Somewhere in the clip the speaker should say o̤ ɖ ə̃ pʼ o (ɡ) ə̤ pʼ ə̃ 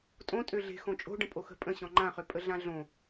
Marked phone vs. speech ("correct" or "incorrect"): incorrect